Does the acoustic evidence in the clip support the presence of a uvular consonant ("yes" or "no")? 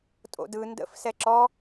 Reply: no